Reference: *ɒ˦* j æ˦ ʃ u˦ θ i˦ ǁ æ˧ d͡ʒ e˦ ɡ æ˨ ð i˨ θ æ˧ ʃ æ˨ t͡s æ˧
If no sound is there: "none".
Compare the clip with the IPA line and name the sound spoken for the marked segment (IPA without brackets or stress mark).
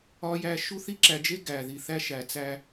ɒ˦